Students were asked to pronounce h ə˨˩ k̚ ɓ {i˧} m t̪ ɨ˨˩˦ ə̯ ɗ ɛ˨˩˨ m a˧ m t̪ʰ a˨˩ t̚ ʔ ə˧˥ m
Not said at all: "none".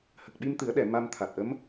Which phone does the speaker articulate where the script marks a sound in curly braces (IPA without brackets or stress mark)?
i˧